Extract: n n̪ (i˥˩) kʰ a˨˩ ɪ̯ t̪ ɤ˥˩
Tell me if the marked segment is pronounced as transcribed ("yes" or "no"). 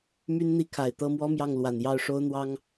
yes